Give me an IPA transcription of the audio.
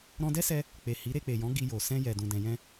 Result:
ɾ ɔ̃˧ d ɛ˦ s ɛ˧ | k͡p e˨ h i˨˦ ɾ e˧ k͡p e˨ j ɔ̃˨˦ ɡ i˧ j o˨ s ɛ̃˧ j ɛ˨ d ũ˨ d ɛ̃˨ j ɛ̃˧

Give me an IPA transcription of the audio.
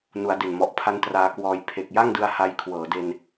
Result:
n u˩˦ a̯ d e˨˩ n m ɔ˨˩ ʔ pʰ a˦˥ n t r aː˧ k w ɔː˧ j pʰ e˨˩ k̚ j a˥˩ ŋ d ɯ˧ a̯ h a˧ j kʰ w ɤː˩˦ d e˧ n

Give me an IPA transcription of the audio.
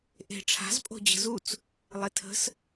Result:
ʔ e̤ ʈ͡ʂʰ a̤ z pʼ o̤ d͡ʑ ə̤ z u t͡s | lˠ e tʰ ə̤ s

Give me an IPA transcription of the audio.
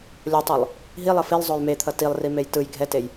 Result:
lʲ o tˤ o lˠ | ɦ i lˠ ʌ f i lˠ zˤ o j m e t̪ʰ ʌ t i lˠ r i m e j t ɯ j ɡʱ ɛ t e j

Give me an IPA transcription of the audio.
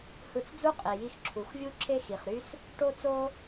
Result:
h ɯ˧ t͡s d͡z u˥ qʼ i˩ j i˧ x ǁʰ u˩ x vʲ u˥ ǁʰ e˥ x i˩ χ ɾ y˥ s | ʈ o˥ t͡s o˥

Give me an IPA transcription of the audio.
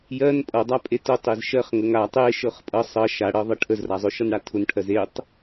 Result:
j ɜ n pʼ ʌ dˤ a pʼ e t ʊ tˤ e z ʃ ɜ χ ŋ ə ŋ a tˤ e ʃ ɤ χ pʼ ʌ sˤ ʌ ʃ a ɽ ɤ ðˤ ʌ ʈʰ ə z r a zˤ ʊ ʃ ʌ n ɽ a tʰ ʊ n ʈʰ ɜ z e tˤ

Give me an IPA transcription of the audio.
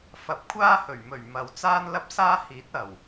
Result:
f ɐ˨˥ p̚ kʷʰ aː˥ h ɵ˨˩ ɥ m ɵ˨˩ ɥ m ɐ˨ w t͡s aː˥ n l ɐ˥ p̚ s aː˥ h iː˨˥ t̚ ɐ˨˩ w

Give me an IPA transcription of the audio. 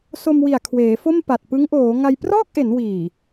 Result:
s o˧ m w i˨˩ a̯ kʰ w eː˩˦ f o˥˩ m p a˨˩ t̚ p ɯ˦˥ ŋ ʔ oː˩˦ ŋ a˧ j p r ɔː˥˩ k̚ ʔ e˩˦ n w iː˨˩

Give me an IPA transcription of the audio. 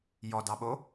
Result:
j ɔ d ɑ ɓ o

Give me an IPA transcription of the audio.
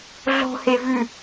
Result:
ɮ o̤ h e v ʉ

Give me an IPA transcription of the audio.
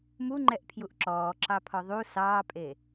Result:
m u ŋ͡ǃ ɛ ʔ pʰ j u ʔ ǁ ɔː ǁ ɑ pʰ ɔ ðˤ u s ɑː pʼ e

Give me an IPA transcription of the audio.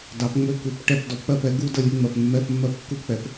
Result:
d ɑ˨˥ p ŋ͡m ø˥ k u˧˥˧ p ʈ ɛ˥˨ p d ɔ˨˥ p k͡p ɜ˥˨ p ɛ˨˥ ɡ u˥ d ə˥˨ lʲ ɯ˧˥˧ ŋ͡m ɜ˥˨ p mː ɛ˧˥˧ p mː ɜ˥˨ p kː u˥ p k͡p ɛ˨˥ p

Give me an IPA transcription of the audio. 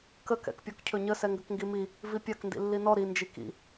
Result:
k ə k ɛ̰ k pʲ ɔ k cʰ ɵ ɲ ə s ɛ ŋ ɡ ə k ŋ ɡ i m i | v i pʲ a k n d ḭ lː i n ɔ ɾ i n d͡ʒ i k ḭ

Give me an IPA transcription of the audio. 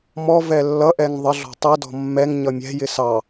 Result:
m ɔ v ɛ lː ʌ ʔ ɛ ŋ ðˤ ə ɮ ɔ̤ tˤ i d ɔ̤ mː ɛ ŋ ɲ ʌ mʲ ɛ̤ j ɪ s ɑ

